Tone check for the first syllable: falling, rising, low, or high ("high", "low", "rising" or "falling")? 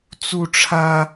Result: high